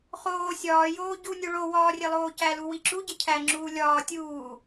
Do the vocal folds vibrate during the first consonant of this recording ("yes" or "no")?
no